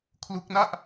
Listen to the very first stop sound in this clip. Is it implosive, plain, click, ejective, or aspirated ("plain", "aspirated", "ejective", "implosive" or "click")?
aspirated